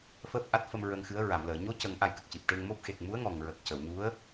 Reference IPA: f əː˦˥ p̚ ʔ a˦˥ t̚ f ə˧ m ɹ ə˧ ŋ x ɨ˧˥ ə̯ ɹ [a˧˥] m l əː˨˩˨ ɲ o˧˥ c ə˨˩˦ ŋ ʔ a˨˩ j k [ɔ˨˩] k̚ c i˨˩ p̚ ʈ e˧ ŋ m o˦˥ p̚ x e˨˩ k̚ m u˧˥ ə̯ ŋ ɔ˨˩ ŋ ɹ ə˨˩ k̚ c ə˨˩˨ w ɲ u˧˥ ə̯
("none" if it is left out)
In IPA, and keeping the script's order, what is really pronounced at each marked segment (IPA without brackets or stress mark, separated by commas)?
a˨˩˨, ə˨˩